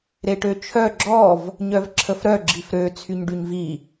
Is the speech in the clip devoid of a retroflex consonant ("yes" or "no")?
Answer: no